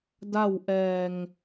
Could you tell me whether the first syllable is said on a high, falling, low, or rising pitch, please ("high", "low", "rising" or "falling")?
falling